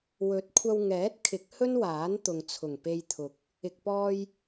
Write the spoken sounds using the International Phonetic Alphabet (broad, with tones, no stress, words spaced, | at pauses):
wɵ˨˥t̚ kʷʰɐ˧wŋɛː˨˥t̚kʰɪ˨˥k̚ hɵ˥nwaː˨˥n t̪ʊ˨ŋt͡sʰʊ˨˩ŋ pe˧jt̪ʰʊ˨k̚ | ɪ˨k̚pɔː˧j